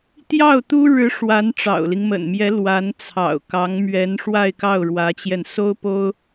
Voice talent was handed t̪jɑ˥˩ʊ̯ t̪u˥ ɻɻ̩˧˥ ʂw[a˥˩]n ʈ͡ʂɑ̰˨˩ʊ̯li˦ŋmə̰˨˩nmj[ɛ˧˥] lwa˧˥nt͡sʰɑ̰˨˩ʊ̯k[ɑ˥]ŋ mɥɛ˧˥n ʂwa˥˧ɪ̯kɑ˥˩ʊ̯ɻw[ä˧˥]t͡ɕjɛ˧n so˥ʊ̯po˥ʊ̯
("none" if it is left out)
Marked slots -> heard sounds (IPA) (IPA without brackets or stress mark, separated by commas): a˧˥, ɛ˧˥, ɑ˧˥, ä˧˥